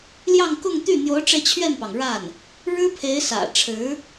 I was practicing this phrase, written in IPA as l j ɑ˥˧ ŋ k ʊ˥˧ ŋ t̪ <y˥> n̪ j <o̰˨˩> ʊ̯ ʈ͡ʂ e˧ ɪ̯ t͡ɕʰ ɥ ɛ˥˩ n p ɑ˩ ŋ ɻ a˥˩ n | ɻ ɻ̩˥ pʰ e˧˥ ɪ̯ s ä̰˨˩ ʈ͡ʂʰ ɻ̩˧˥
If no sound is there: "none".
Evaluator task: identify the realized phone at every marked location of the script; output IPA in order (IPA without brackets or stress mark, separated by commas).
y˥˩, o˧˥